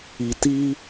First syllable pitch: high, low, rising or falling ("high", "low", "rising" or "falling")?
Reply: low